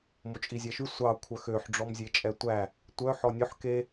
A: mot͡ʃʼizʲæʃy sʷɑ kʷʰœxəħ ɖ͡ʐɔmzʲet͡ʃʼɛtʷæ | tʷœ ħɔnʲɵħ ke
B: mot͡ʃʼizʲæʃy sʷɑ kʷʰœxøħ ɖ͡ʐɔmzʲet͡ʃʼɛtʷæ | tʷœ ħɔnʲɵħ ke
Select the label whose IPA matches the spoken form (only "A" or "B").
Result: B